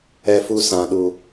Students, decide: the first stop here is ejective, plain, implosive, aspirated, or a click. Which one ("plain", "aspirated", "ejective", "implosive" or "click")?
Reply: implosive